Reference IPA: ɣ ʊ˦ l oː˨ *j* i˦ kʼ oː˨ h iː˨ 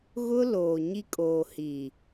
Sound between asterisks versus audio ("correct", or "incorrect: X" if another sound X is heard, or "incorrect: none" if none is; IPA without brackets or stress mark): incorrect: ɲ